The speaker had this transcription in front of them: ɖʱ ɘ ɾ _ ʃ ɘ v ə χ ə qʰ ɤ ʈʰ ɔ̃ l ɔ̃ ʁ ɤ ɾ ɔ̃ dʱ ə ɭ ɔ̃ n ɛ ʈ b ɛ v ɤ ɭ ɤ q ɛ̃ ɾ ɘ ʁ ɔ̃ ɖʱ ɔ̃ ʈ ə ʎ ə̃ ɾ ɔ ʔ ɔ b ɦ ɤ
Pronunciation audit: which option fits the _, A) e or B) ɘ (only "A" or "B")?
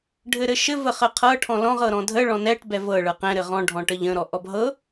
B